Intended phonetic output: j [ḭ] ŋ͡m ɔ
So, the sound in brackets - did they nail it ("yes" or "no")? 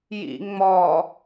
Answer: yes